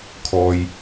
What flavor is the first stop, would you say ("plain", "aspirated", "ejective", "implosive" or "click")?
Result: aspirated